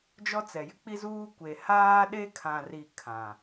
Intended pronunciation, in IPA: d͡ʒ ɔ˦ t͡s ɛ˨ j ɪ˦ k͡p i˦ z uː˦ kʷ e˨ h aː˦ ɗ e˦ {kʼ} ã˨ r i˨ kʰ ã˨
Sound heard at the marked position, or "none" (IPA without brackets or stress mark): kʰ